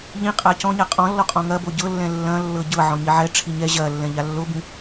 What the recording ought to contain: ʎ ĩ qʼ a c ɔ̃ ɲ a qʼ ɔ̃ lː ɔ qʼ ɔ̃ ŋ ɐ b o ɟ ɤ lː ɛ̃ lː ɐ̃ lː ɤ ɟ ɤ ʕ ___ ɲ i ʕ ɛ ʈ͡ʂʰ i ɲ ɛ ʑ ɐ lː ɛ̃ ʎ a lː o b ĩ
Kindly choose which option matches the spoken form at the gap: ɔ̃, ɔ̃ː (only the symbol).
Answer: ɔ̃